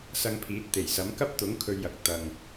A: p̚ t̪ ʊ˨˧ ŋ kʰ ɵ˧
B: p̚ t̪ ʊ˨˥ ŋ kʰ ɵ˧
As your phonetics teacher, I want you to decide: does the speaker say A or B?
B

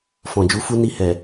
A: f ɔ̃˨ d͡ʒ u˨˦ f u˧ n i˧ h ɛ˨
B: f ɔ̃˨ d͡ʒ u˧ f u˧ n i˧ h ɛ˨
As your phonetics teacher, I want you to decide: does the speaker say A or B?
A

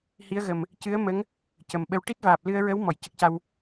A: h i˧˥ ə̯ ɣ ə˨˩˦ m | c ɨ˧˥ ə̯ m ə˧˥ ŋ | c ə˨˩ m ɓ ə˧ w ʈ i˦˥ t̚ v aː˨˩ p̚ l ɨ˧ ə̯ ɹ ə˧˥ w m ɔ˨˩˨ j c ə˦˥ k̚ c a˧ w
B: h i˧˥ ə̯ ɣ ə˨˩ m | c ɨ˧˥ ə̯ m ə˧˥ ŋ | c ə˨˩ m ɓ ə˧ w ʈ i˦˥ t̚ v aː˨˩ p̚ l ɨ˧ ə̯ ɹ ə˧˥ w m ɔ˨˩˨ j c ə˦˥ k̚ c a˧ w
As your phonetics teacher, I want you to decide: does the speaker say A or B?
B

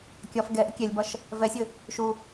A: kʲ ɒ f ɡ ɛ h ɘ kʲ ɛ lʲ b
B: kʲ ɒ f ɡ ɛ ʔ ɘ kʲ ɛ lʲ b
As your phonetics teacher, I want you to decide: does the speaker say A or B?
B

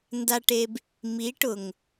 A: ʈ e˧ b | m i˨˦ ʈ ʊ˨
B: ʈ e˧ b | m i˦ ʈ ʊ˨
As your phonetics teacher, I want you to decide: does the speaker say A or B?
A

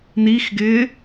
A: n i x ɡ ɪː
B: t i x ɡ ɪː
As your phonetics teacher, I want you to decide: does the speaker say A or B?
A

